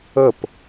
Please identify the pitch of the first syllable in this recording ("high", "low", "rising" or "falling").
falling